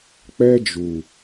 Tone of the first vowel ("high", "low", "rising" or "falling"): high